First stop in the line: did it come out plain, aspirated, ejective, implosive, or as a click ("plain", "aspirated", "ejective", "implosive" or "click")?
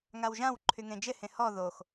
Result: click